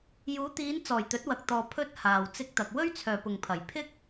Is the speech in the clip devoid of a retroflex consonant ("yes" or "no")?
yes